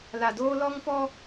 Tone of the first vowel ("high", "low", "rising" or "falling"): low